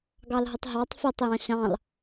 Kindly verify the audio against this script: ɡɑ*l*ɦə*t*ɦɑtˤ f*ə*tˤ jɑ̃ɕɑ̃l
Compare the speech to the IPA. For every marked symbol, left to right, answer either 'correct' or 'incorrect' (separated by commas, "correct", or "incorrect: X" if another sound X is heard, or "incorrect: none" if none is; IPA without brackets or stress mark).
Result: correct, incorrect: tˤ, correct